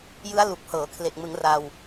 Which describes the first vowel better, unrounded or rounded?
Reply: unrounded